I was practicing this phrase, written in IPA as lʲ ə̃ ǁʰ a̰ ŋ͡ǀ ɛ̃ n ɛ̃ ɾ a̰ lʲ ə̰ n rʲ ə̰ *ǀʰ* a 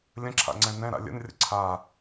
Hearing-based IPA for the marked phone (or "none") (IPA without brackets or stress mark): ǀʰ